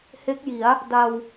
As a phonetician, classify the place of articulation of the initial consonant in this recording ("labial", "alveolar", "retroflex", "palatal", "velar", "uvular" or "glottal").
glottal